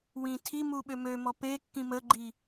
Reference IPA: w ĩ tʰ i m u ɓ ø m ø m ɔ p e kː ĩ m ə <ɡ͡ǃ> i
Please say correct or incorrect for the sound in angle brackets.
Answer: correct